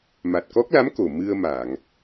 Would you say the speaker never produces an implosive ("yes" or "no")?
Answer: yes